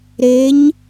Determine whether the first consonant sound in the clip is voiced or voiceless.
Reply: voiced